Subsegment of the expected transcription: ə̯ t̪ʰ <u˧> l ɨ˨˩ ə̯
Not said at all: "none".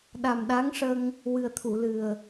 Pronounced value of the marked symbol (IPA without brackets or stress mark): u˨˩˨